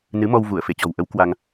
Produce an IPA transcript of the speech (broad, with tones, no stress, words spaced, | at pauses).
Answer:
nɨ˨˦mɔ˧wvu˧˩ə̯ fe˧˩t͡ɕɔ̤˨˩wʔə˨˦w kwa˧ŋ